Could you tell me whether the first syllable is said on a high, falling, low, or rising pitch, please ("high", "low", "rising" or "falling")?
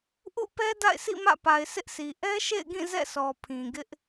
falling